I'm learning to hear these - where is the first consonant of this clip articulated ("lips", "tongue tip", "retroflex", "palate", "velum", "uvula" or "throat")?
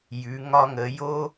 palate